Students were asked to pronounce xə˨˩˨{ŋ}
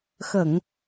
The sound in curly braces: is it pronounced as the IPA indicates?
yes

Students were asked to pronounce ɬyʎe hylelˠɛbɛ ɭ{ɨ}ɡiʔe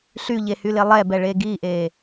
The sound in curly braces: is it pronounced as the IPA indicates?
no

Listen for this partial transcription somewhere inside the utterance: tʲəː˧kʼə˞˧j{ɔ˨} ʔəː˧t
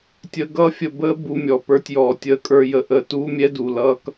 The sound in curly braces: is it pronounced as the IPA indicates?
no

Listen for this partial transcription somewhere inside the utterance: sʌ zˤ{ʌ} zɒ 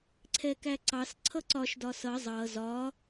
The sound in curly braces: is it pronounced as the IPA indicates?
yes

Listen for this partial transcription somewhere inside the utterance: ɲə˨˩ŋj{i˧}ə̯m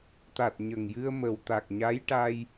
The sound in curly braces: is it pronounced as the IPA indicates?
no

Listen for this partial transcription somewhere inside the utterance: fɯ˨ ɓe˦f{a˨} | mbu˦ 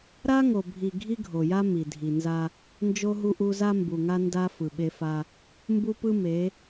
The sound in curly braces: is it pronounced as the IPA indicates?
no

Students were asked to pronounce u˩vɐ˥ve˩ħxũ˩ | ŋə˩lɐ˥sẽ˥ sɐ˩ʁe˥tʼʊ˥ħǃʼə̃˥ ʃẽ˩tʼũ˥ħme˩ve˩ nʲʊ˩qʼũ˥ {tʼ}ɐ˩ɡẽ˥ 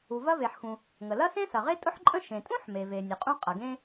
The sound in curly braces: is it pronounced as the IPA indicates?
no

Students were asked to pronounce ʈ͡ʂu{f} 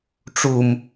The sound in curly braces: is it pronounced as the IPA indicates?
no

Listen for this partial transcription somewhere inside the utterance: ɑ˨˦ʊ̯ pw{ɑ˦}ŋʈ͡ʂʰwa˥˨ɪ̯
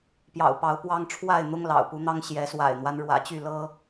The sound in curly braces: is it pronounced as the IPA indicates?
yes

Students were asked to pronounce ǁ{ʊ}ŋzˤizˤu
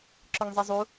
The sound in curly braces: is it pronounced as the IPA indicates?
yes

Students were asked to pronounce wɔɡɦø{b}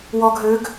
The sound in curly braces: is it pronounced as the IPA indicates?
no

